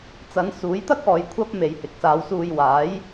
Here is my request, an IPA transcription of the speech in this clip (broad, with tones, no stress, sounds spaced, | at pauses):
t͡s ɐ˨˧ n s uː˨˥ j t̪ ɐ˥ k̚ ɔː˨ j kʷʰ ɐ˥ p̚ m e˨ j h ɪ˨ k̚ s aː˨˧ w s uː˧ j w aː˨˥ j